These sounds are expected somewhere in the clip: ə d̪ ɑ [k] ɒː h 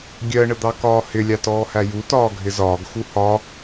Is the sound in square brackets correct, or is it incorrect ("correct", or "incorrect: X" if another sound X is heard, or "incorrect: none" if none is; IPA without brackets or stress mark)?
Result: correct